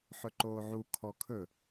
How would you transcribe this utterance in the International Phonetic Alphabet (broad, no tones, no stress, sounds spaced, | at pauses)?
ħ ɵ ǃ oː ʕ u kʰ ɔ kʰ ɵ